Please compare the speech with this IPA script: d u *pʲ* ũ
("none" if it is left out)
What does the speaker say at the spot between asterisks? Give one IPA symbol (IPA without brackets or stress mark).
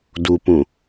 p